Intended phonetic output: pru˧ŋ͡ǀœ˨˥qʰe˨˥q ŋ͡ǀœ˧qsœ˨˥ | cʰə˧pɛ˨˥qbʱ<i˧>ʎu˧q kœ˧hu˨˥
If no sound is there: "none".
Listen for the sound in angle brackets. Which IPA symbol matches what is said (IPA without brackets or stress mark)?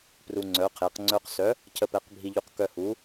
i˧